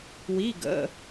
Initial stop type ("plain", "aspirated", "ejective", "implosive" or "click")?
plain